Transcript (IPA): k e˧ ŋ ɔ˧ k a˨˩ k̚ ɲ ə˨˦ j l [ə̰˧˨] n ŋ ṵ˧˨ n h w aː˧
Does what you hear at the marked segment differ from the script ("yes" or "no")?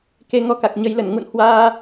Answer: yes